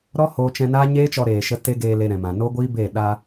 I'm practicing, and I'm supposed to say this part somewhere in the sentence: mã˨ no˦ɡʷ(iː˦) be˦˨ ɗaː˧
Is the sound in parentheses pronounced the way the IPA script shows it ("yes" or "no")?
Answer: yes